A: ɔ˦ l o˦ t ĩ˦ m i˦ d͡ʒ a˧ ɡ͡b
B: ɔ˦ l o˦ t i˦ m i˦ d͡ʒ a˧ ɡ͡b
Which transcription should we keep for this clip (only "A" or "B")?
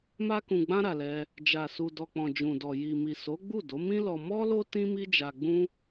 A